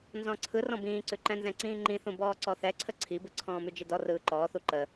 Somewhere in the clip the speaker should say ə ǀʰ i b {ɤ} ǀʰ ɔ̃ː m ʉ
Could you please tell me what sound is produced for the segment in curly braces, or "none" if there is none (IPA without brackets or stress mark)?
ɯ